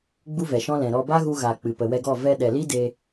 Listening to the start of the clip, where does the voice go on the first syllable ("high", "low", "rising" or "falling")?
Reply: high